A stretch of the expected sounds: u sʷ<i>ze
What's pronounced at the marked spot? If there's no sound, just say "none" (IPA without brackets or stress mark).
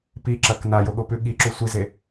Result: i